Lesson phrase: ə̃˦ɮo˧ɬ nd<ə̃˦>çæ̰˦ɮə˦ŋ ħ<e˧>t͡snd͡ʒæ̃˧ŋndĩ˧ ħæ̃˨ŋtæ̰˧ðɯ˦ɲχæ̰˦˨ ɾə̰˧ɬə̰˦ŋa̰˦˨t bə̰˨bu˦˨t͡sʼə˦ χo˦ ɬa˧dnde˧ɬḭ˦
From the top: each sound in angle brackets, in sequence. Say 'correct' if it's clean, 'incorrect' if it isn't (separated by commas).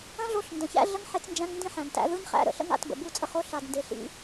incorrect, correct